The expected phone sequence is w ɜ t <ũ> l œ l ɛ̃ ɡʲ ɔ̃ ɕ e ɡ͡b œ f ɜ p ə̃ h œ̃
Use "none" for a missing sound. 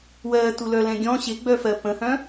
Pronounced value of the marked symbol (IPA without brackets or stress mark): u